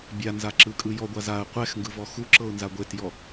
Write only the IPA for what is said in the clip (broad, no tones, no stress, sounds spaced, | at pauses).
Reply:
bʲ a n z a ǁ ɯ kʼ ɯ j ɔ ɡʷ a z a ə̯ qʷ ɛ x ŋ ɡ ɯ v ɔ x u ǁ ɤ ʊ̯ n z a ɡʷ e t j ɔ